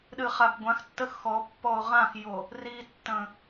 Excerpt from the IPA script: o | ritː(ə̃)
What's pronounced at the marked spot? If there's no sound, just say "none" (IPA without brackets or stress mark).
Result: ə̃